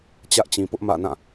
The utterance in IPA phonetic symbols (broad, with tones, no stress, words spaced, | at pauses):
t͡ɕä˦ʔt͡ɕĩ˨pʊ˦ʔ mä̰˦˨nã˦˨